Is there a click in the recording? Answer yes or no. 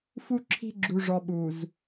yes